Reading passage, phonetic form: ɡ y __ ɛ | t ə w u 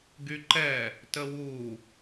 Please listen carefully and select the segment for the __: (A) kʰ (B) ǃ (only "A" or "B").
B